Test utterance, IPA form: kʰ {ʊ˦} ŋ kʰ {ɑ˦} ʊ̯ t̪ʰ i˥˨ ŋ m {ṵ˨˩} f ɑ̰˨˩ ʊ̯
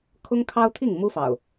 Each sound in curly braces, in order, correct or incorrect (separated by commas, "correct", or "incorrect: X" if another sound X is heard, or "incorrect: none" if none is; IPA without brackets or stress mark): correct, correct, incorrect: u˦